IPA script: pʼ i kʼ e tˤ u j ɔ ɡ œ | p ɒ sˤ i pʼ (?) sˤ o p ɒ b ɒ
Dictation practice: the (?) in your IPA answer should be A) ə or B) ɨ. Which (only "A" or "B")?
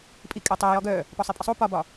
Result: A